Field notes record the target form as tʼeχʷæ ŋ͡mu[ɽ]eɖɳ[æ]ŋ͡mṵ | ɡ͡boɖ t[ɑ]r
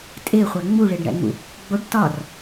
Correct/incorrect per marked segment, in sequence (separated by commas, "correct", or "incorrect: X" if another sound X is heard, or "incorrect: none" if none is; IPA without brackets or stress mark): incorrect: ɭ, incorrect: æ̰, incorrect: ɒ